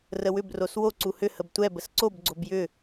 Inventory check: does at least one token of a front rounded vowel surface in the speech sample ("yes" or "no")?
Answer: yes